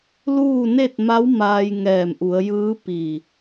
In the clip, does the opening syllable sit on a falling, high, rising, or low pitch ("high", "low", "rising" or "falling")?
falling